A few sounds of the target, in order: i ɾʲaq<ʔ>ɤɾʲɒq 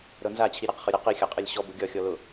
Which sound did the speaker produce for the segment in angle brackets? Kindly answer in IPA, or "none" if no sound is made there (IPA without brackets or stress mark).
χ